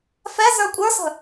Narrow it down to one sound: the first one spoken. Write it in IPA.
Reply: f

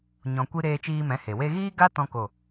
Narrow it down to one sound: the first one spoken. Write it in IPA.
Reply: ɲ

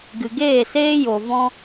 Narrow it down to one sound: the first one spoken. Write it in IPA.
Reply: ɡ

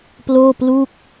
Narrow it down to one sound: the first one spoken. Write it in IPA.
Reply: p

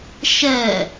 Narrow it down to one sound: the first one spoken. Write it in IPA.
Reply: ʃ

